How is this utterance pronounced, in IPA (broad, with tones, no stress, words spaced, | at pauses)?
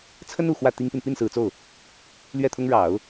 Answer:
t͡sʰə˥nu˨˩ xwä˥˩ t̪i˥ŋpi˨n pi˥˩nsɹ̩˨˩t͡so˥˩ʊ̯ | lɥɛ˥˩t̪ʰʊ˥ŋ ɻɑ˨˩˦ʊ̯